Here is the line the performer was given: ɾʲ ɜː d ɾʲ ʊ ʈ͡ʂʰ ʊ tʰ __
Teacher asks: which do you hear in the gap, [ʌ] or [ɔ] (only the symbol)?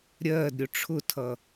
ʌ